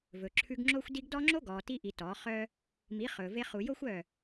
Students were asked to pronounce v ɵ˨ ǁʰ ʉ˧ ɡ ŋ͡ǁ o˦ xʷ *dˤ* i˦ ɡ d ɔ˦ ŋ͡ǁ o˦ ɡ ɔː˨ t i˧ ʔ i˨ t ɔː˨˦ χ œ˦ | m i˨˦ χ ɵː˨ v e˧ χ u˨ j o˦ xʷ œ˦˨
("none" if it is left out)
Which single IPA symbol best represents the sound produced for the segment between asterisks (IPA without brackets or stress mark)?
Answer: d